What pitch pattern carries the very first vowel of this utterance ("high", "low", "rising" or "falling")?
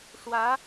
rising